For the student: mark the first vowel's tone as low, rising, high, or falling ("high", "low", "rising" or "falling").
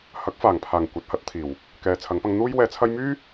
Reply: rising